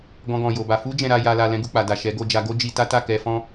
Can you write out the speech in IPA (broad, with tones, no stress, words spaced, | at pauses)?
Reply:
ɡɔ̃˦ɡɔ̃˧jo˧ba˧ fu˦ d͡ʒɛ̃˧ɾa˧ ja˧la˧ lɛ̃˦ɡu˧k͡pa˨da˨ ʃɛ˨˦ɡo˧d͡ʒa˧ ɡo˦d͡ʒi˧ ta˦ta˦˨kɛ˧ fɔ̃˦